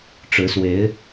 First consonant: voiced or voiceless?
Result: voiceless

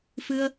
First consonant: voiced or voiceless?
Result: voiceless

